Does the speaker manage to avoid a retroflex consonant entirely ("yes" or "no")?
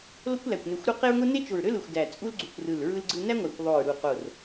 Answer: yes